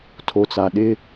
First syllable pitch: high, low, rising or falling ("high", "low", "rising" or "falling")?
low